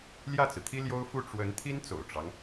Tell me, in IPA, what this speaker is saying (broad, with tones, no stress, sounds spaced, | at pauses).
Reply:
l j ä˥˩ t͡s ɹ̩˩ t̪ʰ i˥ l j o˥ ʊ̯ f u˥˩ ʈ͡ʂ w ə˧˥ n t̪ʰ i˥ n t͡s o̰˨˩ ʊ̯ ʈ͡ʂ ɑ˦ ŋ